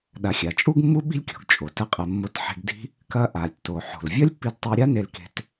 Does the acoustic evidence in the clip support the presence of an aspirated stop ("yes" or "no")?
no